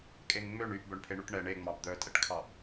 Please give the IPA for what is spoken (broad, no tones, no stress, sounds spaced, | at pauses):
kʼ e ŋ ŋ͡m ø ɳ y ʔ b œ ɳ pʰ e ɳ u ʈ ɳ ɛ ɳ e ŋ͡m ɑ b d̪ œ tʼ ɛ ʈ kʰ ɑ ʔ